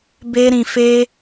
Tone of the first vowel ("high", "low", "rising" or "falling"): high